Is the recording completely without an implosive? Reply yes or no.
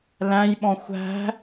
no